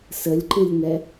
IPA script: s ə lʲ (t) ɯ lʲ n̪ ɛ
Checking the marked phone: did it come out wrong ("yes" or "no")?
yes